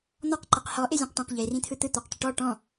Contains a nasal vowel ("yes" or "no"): yes